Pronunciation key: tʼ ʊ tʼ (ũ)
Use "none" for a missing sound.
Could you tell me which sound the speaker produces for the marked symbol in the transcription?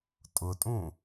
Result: ũ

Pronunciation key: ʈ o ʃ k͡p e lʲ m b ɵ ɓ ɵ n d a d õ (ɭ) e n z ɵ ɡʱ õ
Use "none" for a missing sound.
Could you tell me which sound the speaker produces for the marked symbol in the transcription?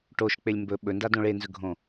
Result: ɭ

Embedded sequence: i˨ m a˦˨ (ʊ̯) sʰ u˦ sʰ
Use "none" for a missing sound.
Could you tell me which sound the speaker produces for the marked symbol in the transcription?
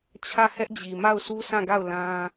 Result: ʊ̯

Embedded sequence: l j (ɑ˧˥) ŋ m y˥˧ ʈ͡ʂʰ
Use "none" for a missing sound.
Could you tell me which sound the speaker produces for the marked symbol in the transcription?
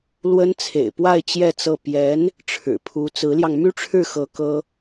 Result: ɑ˧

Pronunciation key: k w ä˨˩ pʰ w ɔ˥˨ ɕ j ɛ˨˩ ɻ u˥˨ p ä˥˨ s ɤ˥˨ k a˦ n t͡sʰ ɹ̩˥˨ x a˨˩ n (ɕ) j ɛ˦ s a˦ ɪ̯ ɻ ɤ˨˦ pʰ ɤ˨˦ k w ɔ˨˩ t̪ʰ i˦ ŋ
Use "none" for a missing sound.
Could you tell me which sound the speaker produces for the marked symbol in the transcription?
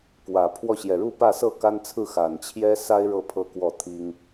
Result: t͡ɕʰ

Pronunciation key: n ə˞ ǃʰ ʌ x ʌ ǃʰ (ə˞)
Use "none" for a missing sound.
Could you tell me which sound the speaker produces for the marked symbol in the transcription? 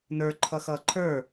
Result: ə˞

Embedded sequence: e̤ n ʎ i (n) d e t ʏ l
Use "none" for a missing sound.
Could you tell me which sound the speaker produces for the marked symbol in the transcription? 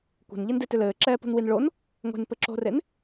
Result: n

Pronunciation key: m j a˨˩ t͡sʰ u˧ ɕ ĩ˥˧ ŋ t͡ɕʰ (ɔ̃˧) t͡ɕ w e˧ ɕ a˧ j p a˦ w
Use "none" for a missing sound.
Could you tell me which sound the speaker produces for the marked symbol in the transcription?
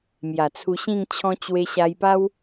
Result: ɔ̃˧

